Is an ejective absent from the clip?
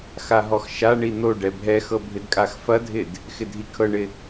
no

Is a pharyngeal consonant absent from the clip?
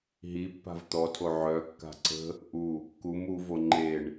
no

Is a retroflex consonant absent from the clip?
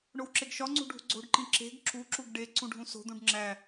no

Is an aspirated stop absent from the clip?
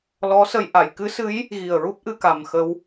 yes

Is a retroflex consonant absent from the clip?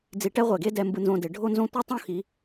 no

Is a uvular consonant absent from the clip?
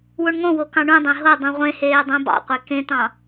no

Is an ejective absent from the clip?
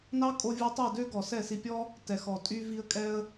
no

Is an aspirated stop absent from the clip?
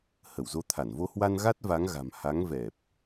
no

